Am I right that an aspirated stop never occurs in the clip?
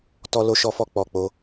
yes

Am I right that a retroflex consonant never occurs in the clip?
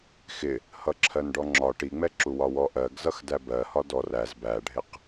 no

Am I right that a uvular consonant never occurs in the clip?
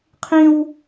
no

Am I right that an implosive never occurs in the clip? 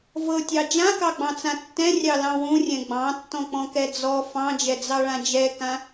yes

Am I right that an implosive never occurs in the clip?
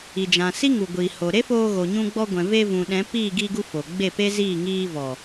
no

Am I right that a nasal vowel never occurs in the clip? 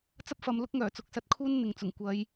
yes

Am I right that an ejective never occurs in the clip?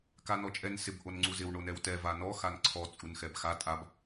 no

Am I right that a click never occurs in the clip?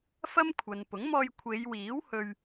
yes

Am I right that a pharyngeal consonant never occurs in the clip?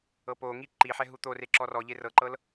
no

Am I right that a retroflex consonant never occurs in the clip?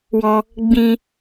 yes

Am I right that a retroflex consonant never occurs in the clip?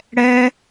no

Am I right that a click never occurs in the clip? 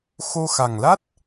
yes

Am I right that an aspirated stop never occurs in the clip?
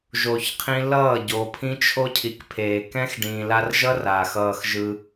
no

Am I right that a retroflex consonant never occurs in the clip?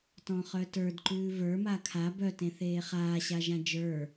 yes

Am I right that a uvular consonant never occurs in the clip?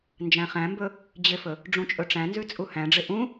no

